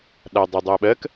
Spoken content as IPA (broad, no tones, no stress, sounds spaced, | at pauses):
ɗ a dˤ a dˤ ɜ ɓ ɜ k